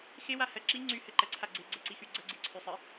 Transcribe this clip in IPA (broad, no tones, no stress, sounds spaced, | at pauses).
x e w a h ɜ ǁ i ŋ͡ǀ y h ɘ ǃ ɜ ǀʰ a ɡ͡ǀ e ɡ͡ǀ ɘ ǀ i x y ɡ͡ǀ ə ɡ͡ǀ i ǀʰ y sˤ ɨ